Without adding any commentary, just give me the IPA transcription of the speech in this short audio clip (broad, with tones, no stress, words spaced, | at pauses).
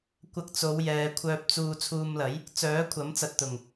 kʷɐ˧k̚t͡so˨˧wjɛː˨ kʷʰœː˧p̚t͡suː˧ t͡sʰuː˧mlɐ˨˥j | t͡sœː˨˥kʷʰɐ˨˥mt͡sɐ˨t̚ t̪ʊ˨˩ŋ